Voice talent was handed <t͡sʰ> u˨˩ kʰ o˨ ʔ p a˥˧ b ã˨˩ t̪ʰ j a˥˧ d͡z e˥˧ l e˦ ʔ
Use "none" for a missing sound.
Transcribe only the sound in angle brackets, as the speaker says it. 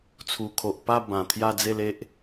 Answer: t͡sʰ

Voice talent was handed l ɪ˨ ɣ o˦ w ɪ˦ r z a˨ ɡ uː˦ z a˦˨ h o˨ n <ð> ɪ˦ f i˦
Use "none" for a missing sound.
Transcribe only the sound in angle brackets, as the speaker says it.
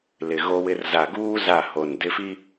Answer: d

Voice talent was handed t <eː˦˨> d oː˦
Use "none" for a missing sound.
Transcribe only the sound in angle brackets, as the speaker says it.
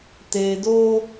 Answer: eː˨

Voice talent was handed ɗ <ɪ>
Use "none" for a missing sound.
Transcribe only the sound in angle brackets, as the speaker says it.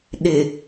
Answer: ɪ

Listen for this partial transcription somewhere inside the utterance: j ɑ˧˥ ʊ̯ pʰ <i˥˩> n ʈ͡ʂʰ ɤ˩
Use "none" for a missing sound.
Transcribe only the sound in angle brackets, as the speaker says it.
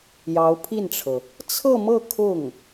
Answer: i˥˩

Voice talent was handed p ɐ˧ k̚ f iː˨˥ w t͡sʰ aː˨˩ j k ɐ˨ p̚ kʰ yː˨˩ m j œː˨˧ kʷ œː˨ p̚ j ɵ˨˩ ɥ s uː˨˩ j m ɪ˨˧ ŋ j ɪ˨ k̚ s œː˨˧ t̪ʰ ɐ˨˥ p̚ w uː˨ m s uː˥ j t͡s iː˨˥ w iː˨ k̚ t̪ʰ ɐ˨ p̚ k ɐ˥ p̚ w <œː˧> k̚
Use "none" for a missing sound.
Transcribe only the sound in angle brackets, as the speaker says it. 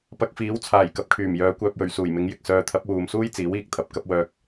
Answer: œː˧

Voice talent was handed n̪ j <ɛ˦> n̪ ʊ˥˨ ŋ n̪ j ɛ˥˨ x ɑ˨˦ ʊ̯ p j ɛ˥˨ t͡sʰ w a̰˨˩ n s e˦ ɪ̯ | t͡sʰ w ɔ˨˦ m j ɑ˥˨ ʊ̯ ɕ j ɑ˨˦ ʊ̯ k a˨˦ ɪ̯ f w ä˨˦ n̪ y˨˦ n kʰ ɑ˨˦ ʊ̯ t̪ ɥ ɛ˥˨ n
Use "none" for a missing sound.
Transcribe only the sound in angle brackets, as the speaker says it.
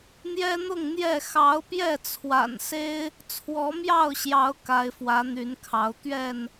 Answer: ɛ˦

